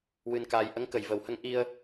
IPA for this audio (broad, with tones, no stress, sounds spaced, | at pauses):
w ɨ˧ n k aː˧ j ʔ ə˧˥ ŋ k ə˨˩ j v ə˨˩ w h ə˧ ŋ ʔ i˧ ə̯